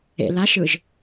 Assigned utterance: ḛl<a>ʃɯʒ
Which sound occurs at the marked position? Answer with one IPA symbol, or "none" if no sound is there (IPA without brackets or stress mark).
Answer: a